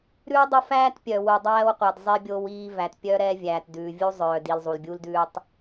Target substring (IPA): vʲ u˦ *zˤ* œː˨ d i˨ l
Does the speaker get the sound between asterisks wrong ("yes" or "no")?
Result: no